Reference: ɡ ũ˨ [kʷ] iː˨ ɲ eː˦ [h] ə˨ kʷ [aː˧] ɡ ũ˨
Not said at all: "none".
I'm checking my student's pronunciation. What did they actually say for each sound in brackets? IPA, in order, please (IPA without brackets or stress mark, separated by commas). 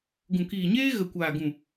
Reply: k, ɣ, aː˨